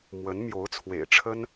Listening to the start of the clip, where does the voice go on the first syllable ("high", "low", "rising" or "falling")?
rising